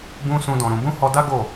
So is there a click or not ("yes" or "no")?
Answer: no